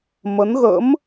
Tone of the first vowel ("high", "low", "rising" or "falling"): rising